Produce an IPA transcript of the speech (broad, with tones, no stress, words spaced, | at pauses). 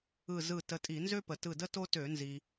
ɯ˧˩ zɯ˧˩tə˨˦tʼi˧˩˧ nzø˥pə˩tɯ˧˩də˥ to˥tø˧˩˧nzi˩